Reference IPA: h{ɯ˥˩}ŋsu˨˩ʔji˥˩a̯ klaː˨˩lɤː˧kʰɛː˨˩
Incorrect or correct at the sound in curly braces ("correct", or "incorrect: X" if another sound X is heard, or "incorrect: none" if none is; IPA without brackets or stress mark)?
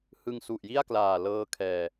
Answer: incorrect: ɯ˧